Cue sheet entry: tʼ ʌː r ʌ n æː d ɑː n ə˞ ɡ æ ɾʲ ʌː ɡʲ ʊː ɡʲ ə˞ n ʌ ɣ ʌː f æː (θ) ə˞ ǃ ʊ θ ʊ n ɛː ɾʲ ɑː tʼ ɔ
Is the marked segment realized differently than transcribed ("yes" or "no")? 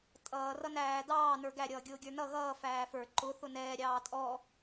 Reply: yes